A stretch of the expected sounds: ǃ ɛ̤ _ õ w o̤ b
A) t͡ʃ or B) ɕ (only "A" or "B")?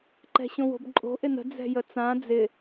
B